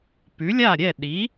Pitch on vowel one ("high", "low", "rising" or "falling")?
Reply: rising